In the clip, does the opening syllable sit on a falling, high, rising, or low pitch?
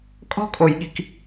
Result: high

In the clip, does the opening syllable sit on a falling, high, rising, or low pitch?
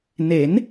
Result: rising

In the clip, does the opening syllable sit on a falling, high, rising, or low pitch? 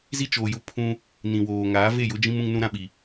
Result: high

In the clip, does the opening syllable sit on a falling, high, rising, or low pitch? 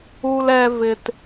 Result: low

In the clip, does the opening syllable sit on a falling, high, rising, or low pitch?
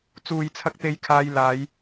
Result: low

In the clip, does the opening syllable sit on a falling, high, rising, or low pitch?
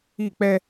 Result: falling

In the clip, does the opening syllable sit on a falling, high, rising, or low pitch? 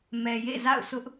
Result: low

